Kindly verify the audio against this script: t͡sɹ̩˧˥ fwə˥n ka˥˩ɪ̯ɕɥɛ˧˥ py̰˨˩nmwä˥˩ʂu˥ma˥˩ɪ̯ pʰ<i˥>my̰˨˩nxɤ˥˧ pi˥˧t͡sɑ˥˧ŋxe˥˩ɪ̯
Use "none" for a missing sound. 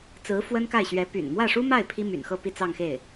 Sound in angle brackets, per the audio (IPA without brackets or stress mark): i˥